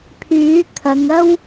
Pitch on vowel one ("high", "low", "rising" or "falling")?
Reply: rising